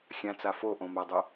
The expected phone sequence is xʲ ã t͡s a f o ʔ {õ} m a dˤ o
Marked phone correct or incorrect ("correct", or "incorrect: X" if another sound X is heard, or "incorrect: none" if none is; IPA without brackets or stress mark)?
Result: correct